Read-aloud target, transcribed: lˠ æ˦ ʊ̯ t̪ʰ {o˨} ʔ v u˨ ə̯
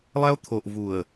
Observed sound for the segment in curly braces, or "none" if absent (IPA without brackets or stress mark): o˨